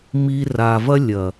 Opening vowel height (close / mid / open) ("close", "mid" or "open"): close